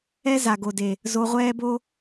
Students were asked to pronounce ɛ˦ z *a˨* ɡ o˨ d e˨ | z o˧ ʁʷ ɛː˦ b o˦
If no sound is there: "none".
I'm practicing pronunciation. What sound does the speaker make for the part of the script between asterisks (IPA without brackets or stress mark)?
a˨